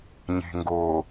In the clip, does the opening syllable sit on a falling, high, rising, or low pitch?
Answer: low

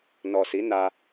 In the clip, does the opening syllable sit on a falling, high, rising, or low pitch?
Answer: low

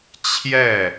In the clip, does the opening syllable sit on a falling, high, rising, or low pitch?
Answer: falling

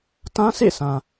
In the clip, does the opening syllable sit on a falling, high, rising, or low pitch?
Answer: high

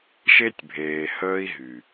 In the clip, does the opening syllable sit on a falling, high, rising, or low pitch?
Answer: high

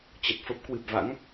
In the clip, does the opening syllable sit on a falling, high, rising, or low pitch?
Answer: low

